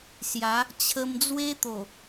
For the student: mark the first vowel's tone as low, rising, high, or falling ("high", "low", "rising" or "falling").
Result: rising